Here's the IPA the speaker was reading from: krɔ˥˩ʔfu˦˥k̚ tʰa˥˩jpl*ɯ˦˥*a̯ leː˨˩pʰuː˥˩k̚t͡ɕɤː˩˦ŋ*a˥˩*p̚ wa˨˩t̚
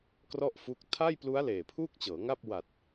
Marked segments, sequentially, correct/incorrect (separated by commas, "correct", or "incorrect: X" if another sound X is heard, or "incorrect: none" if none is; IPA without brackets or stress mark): incorrect: u˦˥, correct